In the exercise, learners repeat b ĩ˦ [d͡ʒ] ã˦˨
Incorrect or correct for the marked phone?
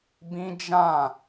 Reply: correct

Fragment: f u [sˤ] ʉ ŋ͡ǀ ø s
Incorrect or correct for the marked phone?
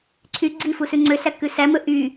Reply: incorrect: s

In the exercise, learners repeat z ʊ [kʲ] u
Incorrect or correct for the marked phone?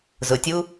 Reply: incorrect: tʲ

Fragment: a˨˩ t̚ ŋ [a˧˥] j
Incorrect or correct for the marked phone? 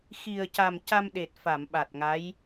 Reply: correct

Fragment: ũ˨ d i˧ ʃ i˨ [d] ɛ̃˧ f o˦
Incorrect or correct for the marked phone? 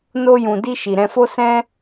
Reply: incorrect: ɾ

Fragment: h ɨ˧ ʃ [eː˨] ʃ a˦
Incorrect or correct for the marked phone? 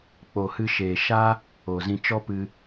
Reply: correct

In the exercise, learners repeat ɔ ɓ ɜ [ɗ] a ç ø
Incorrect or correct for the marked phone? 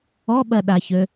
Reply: correct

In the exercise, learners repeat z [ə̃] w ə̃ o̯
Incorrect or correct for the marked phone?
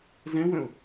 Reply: incorrect: ɛ̃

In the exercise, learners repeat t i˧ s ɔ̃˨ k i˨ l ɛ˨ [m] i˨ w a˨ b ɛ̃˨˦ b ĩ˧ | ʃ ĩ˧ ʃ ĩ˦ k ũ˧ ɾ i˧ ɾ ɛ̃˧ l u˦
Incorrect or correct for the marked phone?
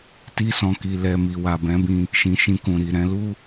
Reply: correct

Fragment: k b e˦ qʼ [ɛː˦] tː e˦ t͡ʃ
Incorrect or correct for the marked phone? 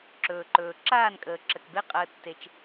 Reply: incorrect: əː˦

